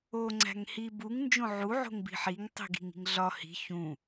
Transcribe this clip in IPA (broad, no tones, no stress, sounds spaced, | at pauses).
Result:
o ŋ͡ǀ æ̤ ŋ h i b u ŋ n d͡ʒ õ ʕ u ʕ o̤ ŋ b i̤ ħ i ŋ tˤ i̤ ɡ i̤ ŋ i̤ ŋ ɮ ɒ h i̤ ç ũ